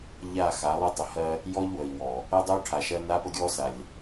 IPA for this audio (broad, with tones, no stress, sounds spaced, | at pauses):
ʎ a˦˨ x a˨˦ lˠ ə˦ tˤ ə˨ h ɜ˦ | j ɔ˦ ʎ w ə˨ i̯ w ɔ˨ | ɜ˦ dˤ o˦ ʈʰ a˨ ʃ ɜ˦ n a˦ p ə˦ ɡʲ ɔ˦ s a˨ lʲ